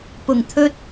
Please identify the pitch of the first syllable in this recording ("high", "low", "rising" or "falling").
low